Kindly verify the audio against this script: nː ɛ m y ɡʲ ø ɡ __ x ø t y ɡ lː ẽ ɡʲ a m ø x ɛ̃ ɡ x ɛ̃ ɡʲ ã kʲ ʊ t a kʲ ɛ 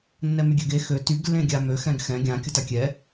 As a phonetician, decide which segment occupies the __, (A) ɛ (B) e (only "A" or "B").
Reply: B